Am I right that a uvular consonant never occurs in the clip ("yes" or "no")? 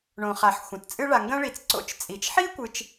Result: no